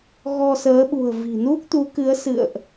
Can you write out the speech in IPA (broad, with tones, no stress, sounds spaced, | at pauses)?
ɣ ɔ˧ s əː˨˦ ɓ ṳ˨˩ ə̯ v i̤˨˩ n u˦˥ k̚ t̪ u˨˦ k ɨ˨˦ ə̯ s ɨ̰˧˨ ə̯ ʔ